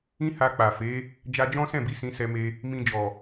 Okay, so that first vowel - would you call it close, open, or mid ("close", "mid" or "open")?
close